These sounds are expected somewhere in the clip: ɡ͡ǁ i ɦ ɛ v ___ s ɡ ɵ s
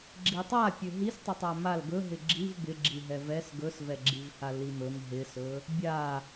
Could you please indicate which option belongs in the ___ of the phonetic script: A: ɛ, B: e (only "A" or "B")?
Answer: A